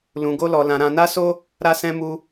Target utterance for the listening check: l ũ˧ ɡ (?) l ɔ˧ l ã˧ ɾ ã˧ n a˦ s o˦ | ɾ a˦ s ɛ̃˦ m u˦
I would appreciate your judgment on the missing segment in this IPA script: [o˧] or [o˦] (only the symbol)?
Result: o˦